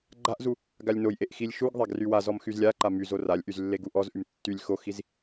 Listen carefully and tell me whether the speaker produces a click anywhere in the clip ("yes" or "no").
yes